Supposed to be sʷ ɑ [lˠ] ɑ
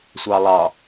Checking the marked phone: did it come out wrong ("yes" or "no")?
no